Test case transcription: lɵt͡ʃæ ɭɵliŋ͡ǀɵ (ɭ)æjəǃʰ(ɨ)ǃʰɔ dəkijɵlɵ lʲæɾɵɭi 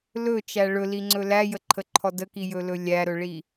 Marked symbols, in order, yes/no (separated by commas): no, no